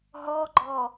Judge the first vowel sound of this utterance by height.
mid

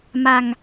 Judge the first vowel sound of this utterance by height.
low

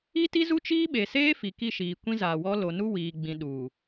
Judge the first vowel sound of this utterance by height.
high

